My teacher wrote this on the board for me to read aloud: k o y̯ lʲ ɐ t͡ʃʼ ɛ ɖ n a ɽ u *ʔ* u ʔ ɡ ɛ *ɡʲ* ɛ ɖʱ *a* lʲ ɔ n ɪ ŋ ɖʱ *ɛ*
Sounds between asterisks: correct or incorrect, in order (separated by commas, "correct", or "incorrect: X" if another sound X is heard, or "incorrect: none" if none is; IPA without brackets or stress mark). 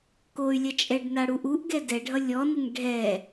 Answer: correct, incorrect: d, incorrect: ʌ, correct